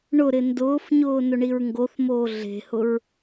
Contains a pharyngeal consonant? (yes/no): no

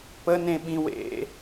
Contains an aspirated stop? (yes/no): no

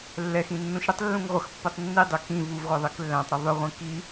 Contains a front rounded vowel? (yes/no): yes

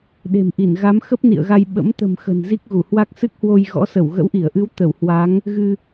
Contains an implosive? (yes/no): yes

